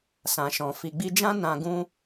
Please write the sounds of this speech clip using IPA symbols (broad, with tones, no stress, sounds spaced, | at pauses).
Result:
s ã˨ ʃ ɔ̃˨ f i˨ ɡ͡b i˧ d͡ʒ ã˦ n ã˧ ɡ ũ˦